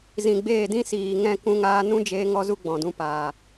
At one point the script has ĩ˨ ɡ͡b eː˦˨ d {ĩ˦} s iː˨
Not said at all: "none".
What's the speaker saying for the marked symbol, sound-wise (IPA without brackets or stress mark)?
ĩ˦